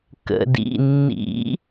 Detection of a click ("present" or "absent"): absent